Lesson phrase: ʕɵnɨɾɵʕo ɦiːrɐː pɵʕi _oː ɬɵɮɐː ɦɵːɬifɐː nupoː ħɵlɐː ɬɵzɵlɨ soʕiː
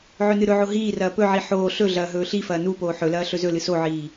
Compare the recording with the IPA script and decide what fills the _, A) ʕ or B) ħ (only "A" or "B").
B